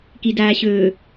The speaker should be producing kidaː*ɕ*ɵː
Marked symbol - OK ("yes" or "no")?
yes